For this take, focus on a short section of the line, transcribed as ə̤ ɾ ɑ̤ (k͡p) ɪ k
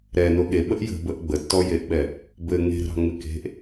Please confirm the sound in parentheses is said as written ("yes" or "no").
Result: no